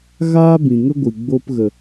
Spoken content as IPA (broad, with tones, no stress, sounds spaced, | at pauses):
ɣ aː˦ b ĩ˨ ŋ ə˦ ɡʷ ɨ˨ ɡ͡b o˧ p ɣ ə˨